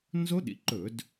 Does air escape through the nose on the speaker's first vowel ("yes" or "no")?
no